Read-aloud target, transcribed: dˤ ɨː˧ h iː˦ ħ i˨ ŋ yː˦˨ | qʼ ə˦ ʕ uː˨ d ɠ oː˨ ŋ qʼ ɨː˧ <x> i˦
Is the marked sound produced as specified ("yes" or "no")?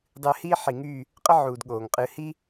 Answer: no